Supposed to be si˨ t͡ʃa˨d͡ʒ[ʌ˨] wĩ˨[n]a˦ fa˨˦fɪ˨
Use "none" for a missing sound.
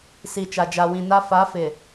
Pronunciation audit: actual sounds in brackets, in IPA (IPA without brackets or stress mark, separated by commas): a˨, n